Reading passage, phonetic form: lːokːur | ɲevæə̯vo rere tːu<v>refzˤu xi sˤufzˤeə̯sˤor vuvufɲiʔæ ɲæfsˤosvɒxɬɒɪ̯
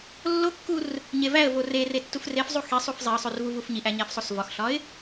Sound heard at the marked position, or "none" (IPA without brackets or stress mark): f